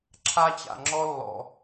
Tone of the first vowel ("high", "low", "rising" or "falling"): high